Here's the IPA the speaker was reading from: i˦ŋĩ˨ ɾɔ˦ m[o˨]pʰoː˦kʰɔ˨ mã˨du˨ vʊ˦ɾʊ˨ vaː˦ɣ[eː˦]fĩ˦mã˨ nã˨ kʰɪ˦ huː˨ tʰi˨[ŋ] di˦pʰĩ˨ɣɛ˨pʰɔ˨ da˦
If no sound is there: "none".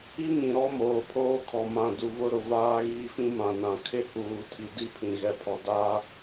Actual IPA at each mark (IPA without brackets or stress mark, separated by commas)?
oː˨, iː˦, none